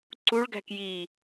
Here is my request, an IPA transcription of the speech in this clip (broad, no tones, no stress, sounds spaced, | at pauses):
ǀ u ɭ ɡ æ̤ k j i